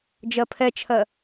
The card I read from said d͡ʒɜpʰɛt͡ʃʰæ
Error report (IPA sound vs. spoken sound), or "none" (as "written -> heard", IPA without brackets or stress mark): æ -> ɜ